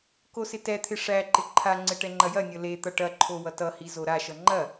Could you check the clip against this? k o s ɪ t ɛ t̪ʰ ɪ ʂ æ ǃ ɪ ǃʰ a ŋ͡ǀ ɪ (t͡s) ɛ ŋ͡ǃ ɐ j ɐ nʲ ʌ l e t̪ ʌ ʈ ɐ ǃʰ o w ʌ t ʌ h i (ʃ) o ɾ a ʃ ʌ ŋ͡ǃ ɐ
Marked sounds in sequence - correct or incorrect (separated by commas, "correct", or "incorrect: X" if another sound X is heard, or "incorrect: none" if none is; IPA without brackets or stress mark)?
incorrect: ʈ, incorrect: z